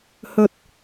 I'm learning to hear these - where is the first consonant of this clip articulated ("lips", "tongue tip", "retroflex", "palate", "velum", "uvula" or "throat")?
throat